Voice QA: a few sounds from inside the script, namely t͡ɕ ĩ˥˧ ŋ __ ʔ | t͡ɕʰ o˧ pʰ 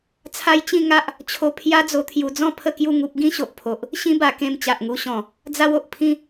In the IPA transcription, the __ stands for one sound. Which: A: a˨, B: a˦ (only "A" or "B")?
B